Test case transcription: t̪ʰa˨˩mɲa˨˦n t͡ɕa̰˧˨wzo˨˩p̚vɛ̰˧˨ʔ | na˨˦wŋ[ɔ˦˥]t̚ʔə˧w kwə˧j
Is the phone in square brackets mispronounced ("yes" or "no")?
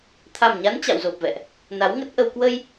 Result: yes